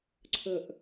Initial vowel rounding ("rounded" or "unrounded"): unrounded